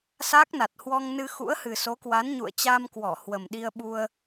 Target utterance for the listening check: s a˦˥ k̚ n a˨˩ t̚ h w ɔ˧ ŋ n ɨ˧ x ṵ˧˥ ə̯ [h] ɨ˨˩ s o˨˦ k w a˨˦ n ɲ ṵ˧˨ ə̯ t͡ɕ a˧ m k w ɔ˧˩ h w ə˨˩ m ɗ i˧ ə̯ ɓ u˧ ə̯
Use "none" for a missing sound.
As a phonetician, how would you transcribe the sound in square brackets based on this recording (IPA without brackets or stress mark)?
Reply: h